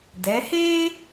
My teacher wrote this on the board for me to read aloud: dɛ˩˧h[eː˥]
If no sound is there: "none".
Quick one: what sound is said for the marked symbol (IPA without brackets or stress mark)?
eː˥